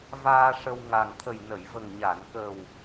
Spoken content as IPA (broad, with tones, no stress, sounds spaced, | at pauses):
v aː˧ ʂ ə˧ w ŋ a˨˩ ŋ t̪ʰ ə˨˩ j n ə˨˩˨ j v ə˨˩ ŋ ɲ a˨˩˨ n k ə˨˩ w